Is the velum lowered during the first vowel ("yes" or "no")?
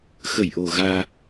no